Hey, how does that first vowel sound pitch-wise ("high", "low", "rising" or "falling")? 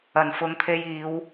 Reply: low